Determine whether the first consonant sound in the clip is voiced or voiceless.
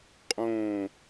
voiceless